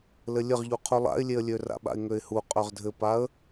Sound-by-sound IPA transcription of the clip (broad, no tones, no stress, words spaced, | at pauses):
lɘlʲɘʁʎu qʰulˠa̰ɪ̯lʲeə̯lʲø ra̰ɓa̰ɪ̯ŋøɪ̯hu qʼøʁdʱɘpaə̯